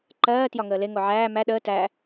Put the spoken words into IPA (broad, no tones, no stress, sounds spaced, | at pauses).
ǃ ɜː t j ɒ ŋ əː l e ŋ o ʕ æː m æ ɗ əː t æ